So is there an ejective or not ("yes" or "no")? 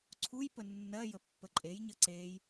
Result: yes